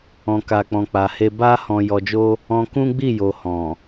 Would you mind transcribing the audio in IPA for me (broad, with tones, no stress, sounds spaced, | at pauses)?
ɔ̃˧ k a˧ k͡p ɔ̃˨ k͡p a˨ h e˧ b a˦ h ɔ̃˧ j ɔ˧ d͡ʒ o˦ | ɔ̃˧ k ũ˦ ɡ͡b i˦˨ j o˨ h ɔ̃˨